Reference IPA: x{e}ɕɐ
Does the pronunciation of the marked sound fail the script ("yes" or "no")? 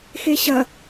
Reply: no